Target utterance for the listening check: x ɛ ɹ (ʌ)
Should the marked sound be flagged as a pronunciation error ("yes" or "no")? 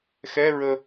yes